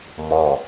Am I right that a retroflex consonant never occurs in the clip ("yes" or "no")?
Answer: yes